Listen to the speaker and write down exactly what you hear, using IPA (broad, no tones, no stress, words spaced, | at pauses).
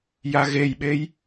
jaɣejɓej